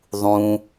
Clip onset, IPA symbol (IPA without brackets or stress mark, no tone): ðˤ